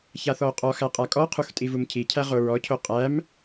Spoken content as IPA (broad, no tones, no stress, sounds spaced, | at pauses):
ç a θ ɔ o̯ qʼ ɔ x æ qʼ a kʼ ɔ qʰ u x tʼ i v u m cʰ i cʰ æ ʁ o ɹ ɔ cʰ o qʼ æ m